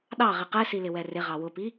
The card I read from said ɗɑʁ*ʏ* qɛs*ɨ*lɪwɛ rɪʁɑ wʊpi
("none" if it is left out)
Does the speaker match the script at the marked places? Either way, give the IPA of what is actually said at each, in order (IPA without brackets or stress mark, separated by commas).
ɪ, i